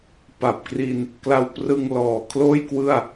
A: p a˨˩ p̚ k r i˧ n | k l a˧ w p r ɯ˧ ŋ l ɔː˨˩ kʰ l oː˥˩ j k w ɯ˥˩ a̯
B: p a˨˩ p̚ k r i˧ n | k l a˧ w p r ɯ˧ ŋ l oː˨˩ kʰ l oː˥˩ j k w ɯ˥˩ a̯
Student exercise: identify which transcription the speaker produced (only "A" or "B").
A